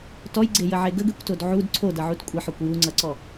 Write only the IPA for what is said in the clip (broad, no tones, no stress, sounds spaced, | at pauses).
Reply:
t ɔ j ɡ͡ǀ e j ə ʕ e ɡ ə ɡ e kʷ t o d ʕ u d ǀʰ o d ʌ ʕ u t kʷʼ ə ħ ɔ kʷ j u ŋ͡ǀ ʌ ǀ ɔ